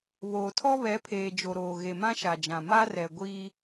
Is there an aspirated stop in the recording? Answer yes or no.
yes